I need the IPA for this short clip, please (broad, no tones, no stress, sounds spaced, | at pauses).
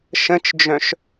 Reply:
ʃ ə̃ t͡ʃ d͡ʒ œ̃ ʃ